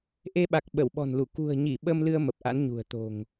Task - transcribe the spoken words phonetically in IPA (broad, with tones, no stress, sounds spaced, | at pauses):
ʔ e˧ ɓ a˨˩ k̚ ɓ ə˧˩ w ɓ ɔ̤˨˩ n l u˧˩ k ṳ˨˩ ə̯ ɲ i˧˩ ɓ ə˧ m l ɨ˧ ə̯ m ə˨˩ p̚ ʔ a̰˧˥ n ɲ ṳ˨˩ ə̯ t̪ o̤˨˩ ŋ